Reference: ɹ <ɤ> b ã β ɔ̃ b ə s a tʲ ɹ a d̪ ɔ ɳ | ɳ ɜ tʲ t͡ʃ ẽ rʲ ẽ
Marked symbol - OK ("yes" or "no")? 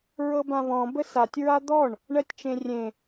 yes